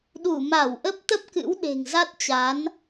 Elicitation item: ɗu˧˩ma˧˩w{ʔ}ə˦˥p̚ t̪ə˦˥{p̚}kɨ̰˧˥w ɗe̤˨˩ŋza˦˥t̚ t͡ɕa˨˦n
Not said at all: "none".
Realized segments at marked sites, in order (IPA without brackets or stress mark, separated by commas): ʔ, p̚